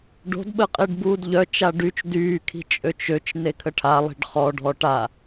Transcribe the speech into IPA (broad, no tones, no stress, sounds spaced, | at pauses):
ɖ o̤ d ɓ ə qʼ e ɖ b uː d ʎ œ t͡ʃ a ɖ y t͡ʃ d yː kʰ i̤ t͡ʃʼ ø t͡ʃ ø t͡ʃ n e kʰ ə ʈʰ a lˠ i̤ ɖ χ ɔ ɖʱ ɔ ʈ a